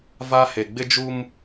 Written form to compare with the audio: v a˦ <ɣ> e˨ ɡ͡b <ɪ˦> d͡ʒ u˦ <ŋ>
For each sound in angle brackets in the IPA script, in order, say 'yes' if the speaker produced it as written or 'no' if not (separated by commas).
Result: no, yes, no